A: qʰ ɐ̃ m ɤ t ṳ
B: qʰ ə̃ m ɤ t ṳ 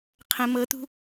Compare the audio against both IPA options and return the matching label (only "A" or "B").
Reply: B